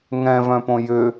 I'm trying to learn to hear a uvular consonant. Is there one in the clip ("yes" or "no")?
no